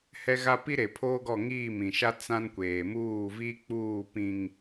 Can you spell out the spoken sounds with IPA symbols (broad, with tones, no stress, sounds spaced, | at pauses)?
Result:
h ɛ˦ ɣ a˦ p i˦ ɾ e˨ pʰ oː˦ ɡ ɔ˦˨ ŋ iː˦˨ m ĩ˨ ʃ a˦ t͡s ã˦ n kʷ eː˨ m uː˦˨ v i˦ k͡p uː˦˨ p ĩ˨ ŋ